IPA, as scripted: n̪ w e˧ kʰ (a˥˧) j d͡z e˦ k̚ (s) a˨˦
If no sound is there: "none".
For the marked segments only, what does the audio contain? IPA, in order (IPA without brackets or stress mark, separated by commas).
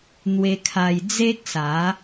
a˧, s